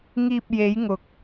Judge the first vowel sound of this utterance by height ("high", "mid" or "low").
high